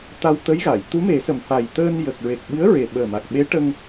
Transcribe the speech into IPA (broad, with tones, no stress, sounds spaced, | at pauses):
t̪ a˧ w t̪ ə˧˥ j ɣ a˨˩˨ j t̪ u˧˥ m e˨˩˦ s ə˨˩˨ m f a˨˩ j t̪ əː˧ n j ə˨˩ k̚ ɹ e˨˩ k̚ ɓ ɨ˧˥ ə̯ ɹ e˨˩ ɓ əː˨˩ m a˨˩ k̚ ɓ e˧˥ ʈ ə˧ ŋ